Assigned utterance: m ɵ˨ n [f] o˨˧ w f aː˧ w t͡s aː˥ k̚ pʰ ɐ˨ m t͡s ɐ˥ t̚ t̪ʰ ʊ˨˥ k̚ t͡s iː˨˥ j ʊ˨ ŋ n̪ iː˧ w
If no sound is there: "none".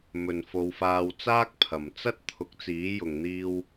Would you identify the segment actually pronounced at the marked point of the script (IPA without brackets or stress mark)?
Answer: f